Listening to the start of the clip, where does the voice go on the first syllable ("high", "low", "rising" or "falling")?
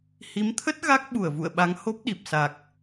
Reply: rising